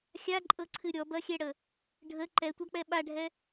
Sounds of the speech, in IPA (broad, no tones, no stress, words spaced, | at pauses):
xʲaǃʼɤǀʰɨ ɾʲɔbɐxʲɛɽə | ɖʱə ǃɛtʷak͡pɛ ɓaɖʱɛ